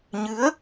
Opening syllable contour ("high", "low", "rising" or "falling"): rising